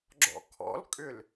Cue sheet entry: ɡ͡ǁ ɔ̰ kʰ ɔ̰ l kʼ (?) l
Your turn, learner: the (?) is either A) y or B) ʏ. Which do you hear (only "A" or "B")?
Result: B